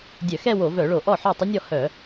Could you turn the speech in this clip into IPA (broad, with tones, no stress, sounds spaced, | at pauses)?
dʲ œ˧˩˧ x ɛ˥˧ w o˧˩˧ v œ˧˩˧ ɭ o˧˩˧ ʔ ɔ˥˩ ħ œ˥˩ tˤ ə˦˥ nʲ ɔ˥˩ h œ˧˩˧